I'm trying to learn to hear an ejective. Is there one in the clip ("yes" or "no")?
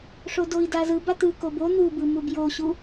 no